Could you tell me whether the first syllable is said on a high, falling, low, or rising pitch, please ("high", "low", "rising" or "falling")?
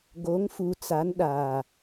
rising